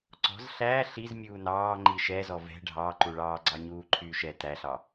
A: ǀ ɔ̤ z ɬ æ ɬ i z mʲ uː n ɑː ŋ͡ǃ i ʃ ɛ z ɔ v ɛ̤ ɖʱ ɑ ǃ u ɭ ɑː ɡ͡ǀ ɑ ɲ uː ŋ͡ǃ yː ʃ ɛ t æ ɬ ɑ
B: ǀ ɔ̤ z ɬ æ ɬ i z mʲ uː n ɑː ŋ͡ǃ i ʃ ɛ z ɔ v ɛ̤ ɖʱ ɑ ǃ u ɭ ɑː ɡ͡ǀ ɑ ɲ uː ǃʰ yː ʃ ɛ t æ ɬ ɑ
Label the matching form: B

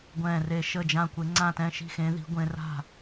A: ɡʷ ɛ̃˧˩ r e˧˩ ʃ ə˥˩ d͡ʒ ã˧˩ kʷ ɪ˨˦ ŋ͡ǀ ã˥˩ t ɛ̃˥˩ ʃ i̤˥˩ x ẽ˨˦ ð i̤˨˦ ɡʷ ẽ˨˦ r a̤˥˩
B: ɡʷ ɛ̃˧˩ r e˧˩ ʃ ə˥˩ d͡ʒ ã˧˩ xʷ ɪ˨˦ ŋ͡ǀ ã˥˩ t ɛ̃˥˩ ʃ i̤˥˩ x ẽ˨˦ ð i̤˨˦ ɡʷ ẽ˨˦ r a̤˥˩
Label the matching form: A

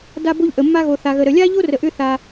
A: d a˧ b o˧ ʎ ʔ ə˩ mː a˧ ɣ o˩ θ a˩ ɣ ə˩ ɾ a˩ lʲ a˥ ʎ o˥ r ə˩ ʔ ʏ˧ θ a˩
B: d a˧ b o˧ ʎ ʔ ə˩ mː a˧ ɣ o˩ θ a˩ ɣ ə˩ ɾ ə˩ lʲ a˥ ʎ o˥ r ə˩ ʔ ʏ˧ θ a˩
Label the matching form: B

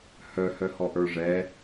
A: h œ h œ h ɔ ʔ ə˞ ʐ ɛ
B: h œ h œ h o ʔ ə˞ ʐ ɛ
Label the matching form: A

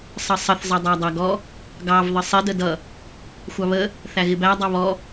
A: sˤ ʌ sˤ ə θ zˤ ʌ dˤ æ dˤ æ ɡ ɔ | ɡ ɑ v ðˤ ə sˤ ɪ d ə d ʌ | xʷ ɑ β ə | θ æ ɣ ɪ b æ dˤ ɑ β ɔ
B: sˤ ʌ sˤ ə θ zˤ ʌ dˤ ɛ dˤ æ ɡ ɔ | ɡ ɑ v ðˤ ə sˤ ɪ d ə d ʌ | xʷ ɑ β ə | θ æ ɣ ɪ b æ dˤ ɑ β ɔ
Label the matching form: A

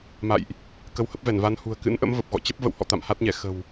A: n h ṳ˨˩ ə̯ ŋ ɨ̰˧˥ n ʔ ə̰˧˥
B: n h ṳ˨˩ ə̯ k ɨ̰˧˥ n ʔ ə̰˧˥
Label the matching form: B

